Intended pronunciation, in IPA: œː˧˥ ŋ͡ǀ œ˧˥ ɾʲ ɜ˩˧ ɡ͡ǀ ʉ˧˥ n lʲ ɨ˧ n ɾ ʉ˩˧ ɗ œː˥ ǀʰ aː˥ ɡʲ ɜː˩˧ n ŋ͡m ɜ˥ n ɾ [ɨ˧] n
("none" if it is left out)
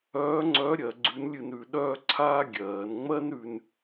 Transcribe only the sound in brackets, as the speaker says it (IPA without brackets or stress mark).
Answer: ʉ˧